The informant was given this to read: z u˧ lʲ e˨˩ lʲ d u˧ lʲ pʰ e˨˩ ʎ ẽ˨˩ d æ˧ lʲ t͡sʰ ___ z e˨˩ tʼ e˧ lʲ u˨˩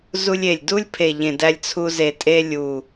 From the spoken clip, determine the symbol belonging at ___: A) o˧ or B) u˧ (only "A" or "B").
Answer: B